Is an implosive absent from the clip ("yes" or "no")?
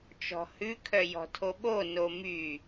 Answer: no